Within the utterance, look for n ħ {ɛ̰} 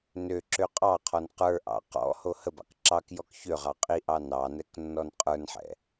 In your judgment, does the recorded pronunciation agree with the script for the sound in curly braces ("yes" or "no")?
yes